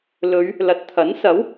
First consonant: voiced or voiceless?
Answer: voiced